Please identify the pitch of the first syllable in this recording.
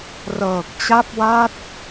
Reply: low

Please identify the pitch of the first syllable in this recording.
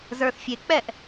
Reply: low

